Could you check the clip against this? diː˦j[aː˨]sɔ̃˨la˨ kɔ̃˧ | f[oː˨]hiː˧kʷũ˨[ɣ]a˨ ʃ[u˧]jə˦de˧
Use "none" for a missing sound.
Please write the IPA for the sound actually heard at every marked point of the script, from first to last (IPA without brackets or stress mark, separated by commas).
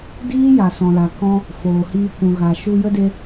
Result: a˨, oː˨, ɣ, u˧